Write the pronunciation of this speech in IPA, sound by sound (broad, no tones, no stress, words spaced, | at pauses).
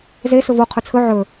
ze sɵvo qʰɵt͡sʰɵ ʕɵ